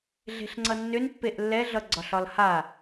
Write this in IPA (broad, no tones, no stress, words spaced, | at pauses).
ɮe̤ɬŋ͡ǀʌnːʏnpːeʔ lːɛɮʌ ɡ͡ǀɒɬɒlha